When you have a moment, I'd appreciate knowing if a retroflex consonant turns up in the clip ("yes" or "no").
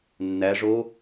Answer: yes